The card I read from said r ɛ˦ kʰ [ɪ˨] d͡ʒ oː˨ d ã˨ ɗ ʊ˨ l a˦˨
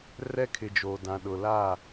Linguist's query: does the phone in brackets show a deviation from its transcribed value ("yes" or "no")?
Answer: no